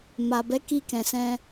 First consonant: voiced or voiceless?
voiced